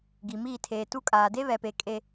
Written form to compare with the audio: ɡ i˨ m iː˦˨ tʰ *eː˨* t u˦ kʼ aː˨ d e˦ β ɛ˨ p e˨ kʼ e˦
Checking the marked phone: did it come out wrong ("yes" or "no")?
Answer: no